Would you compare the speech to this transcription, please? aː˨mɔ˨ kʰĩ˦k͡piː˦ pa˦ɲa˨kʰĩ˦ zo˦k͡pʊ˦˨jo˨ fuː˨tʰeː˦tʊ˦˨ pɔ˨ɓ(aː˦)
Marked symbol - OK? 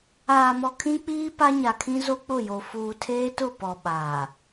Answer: no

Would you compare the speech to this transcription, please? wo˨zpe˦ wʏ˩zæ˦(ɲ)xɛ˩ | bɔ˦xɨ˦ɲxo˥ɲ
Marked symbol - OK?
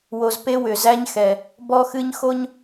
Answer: yes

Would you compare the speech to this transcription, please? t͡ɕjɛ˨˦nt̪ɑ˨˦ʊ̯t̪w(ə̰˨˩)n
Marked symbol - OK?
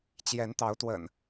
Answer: yes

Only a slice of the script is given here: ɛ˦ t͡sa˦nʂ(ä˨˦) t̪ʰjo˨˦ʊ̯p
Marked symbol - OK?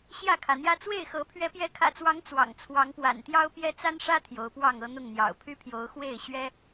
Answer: no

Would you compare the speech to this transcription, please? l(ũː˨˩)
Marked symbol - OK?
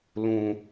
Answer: yes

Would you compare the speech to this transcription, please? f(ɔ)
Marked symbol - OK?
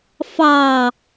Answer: no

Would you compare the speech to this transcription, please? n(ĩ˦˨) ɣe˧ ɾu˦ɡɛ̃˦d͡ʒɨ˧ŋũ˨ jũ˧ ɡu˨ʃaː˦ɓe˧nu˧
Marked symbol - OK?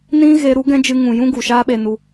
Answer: no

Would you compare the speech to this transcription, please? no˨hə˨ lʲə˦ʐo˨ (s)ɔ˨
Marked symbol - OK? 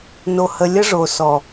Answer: yes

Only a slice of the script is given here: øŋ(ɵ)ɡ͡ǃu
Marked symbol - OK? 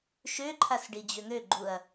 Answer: no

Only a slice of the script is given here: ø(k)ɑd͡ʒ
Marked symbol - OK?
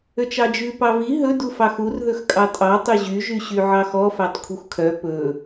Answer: no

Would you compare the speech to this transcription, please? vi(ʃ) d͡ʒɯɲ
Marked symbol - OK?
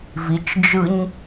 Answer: no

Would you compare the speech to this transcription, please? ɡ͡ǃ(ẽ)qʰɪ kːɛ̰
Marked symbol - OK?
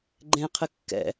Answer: yes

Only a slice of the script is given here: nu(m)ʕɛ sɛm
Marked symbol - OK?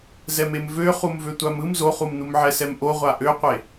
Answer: yes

